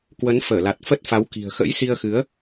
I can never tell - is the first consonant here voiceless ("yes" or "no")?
yes